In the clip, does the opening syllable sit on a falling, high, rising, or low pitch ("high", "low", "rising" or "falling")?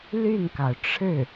falling